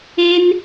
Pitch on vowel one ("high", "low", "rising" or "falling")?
high